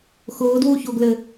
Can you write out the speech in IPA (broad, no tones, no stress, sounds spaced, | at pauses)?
x ʊː d w u ç o ɡ l ɘ